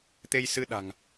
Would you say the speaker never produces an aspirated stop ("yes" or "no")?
yes